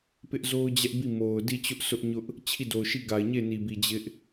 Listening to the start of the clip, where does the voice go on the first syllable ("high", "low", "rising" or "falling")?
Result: high